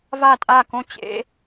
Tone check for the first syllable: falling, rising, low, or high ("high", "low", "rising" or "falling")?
falling